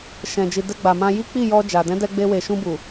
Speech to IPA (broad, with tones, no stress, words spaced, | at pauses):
ʃɛ̃˨d͡ʒi˨ dɛ˧ɡ͡ba˨mã˧ji˦ k͡pi˦˨jɔ˧ d͡ʒa˨dɛ̃˨˦dɛ˧ɡ͡be˧ we˨ʃũ˧bu˨